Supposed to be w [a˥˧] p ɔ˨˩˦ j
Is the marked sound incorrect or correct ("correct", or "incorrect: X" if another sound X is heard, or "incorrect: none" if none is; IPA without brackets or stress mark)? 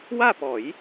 correct